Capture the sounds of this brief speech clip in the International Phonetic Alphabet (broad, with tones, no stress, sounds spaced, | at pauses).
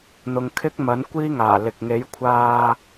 n̪ ʊ˨ ŋ kʰ ɪ˥ k̚ m ɐ˨˥ n kʷ iː˥ ŋ aː˨˩ l ɪ˨ k̚ ŋ e˨˥ j kʷʰ aː˧